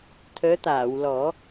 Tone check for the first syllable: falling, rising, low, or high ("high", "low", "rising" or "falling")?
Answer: rising